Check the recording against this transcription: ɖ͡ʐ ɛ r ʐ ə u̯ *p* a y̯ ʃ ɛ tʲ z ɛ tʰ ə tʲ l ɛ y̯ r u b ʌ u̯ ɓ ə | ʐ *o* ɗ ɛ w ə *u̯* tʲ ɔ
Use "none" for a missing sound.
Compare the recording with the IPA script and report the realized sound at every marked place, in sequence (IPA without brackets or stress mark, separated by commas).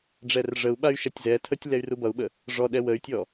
ɓ, ɔ, y̯